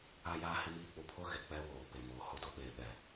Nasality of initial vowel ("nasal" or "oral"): oral